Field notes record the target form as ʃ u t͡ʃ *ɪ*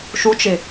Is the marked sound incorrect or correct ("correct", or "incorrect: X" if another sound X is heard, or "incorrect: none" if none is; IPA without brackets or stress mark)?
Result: correct